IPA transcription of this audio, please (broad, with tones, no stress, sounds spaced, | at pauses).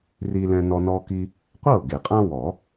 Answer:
r i˦ l ɛ̃˦ n ɔ˦ n ɔ˦ k i˦ | qʷ ɤ˥˩ ɡ e˨˩˦ qʼ ã˦ w ɔ˨˩˦